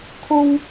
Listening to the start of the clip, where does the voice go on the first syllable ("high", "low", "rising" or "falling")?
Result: high